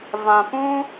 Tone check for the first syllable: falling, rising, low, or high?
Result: low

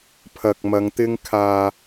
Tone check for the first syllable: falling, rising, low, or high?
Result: low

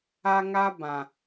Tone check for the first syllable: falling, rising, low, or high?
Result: high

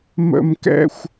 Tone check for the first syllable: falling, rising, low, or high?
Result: high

